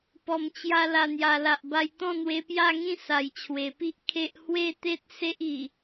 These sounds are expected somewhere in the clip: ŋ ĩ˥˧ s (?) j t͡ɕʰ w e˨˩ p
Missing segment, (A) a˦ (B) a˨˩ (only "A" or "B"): B